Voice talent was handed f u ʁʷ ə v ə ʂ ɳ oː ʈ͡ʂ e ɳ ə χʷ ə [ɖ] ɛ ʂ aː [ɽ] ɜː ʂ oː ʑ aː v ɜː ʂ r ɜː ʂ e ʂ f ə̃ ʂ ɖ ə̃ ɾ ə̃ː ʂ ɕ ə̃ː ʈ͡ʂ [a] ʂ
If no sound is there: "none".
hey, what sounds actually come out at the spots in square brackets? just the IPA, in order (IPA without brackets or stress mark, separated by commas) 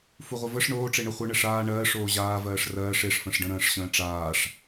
ɳ, ɳ, aː